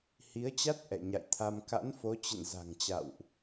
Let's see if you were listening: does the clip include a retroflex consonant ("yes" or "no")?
no